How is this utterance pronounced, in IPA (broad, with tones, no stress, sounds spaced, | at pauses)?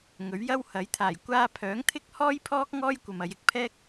ŋ ɵ˨˥ ɥ j ɐ˥ w h ɐ˨˥ j t̪ʰ aː˨˩ j kʷ aː˧ pʰ œː˨˥ ŋ t̪ʰ ɪ˥ k̚ h ɔː˥ j pʰ ɔː˥ k̚ ŋ ɔː˥ j kʷ ɐ˨ m ɐ˨˧ j ɪ˧ k̚ pʰ ɛː˥ k̚